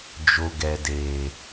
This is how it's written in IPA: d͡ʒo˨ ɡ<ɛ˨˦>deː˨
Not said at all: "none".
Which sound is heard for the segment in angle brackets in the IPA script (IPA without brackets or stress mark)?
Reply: ɛ˨